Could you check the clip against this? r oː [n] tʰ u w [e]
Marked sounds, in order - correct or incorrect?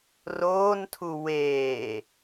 correct, incorrect

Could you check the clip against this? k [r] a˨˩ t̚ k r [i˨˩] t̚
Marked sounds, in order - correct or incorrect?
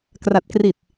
correct, correct

